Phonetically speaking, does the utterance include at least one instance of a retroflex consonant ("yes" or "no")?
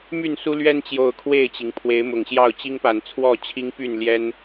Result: no